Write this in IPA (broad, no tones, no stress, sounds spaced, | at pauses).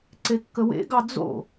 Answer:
ǀ e kː ə w ḛ ɡ ɑ d͡z o̰